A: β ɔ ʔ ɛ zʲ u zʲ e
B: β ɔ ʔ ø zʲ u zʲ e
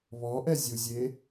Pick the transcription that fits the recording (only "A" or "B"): A